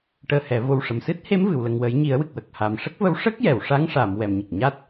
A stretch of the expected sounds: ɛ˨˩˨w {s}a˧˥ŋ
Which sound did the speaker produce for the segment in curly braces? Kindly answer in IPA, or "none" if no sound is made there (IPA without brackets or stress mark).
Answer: ʂ